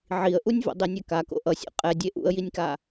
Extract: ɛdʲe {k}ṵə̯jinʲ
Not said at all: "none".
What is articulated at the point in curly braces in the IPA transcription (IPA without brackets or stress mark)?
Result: ʔ